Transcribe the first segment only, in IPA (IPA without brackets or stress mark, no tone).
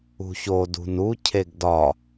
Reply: ṳ